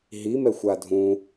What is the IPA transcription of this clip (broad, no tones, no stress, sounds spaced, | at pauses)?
ɦ i m ɛ xʷ a dʱ ũ